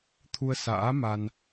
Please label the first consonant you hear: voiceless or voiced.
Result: voiceless